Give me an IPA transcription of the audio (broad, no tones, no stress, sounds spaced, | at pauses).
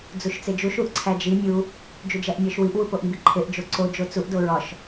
d͡z u ʃ t͡s e d͡ʒ u ʃ u ʔ ǀʰ æ d͡ʒ i mʲ u | d͡ʒ u d͡ʒ æ ʔ mʲ ɒ ʃ w i ʔ w u p o ʔ m b i ǃʰ e ʔ d͡ʒ o ǀ o d͡ʒ o t͡s u ʔ d o ɹ ɒ ʃ